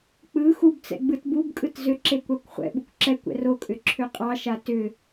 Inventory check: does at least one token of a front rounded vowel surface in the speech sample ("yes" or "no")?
yes